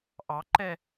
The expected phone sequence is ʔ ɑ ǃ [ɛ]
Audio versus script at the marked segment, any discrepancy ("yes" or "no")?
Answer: no